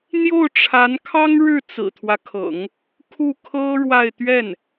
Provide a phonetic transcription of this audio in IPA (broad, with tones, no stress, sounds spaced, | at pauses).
n̪ j o˥˩ ʊ̯ ʈ͡ʂʰ a˧˥ n kʰ ɑ˥ ŋ ɻ ɻ̩˥˩ t͡s ɹ̩˨˩ t̪ʰ w ä˦ kʰ ɤ̰˨˩˦ ŋ | kʰ u˥˩ kʰ ɤ˥ ɻ w a˥˧ ɪ̯ t̪ ɥ ɛ˥˩ n